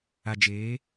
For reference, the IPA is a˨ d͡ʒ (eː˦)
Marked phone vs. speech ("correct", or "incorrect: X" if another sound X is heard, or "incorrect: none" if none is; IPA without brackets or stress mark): incorrect: eː˨˦